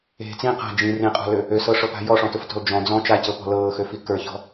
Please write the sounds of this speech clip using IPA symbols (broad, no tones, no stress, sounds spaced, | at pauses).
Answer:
e̤ t͡s ĩ q a̤ d͡ʒ ĩ r ĩ qʼ ɔ̤ l ø | ø s ɤ ʂ ɤ p a̤ j ɔ ʂ ɔ̃ t ʊ f t ɔ̤ l d͡ʒ ɔ̃ d͡z ɔ̃ t͡ʃ a c ɤ p ɔ̤ l ɤː x ø f i k ə˞ ç ɔ̤